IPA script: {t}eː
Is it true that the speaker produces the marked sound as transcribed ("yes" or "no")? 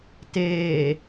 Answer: yes